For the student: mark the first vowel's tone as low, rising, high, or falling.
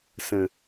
low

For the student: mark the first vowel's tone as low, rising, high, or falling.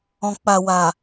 low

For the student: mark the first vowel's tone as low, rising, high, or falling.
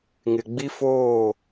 low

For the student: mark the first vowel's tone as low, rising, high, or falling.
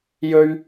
high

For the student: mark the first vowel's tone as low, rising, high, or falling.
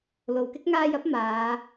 low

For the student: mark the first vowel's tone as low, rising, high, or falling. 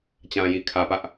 low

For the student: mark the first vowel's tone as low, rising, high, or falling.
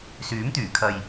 rising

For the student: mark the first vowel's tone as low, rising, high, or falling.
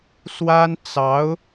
high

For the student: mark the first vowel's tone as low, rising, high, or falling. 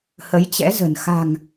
rising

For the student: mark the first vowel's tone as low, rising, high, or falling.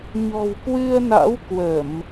low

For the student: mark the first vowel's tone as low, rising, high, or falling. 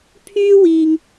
high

